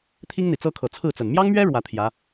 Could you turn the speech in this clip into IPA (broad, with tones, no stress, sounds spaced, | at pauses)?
t̪ʰ i˥ ŋ n̪ i˨˩ t͡s ɤ˥ kʰ ɤ˨˩ t͡sʰ ɹ̩˥˩ t͡s ə˨˩ n m j ɑ˥ ŋ m ɥ ɛ˥ ɻ w ä˧˥ t̪ʰ j ä˧˥